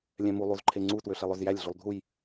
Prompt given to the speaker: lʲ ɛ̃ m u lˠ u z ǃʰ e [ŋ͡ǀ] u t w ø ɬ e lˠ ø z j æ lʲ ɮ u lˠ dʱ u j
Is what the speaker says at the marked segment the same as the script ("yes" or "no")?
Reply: yes